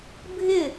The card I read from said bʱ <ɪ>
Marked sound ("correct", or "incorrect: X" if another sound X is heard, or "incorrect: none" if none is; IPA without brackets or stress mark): correct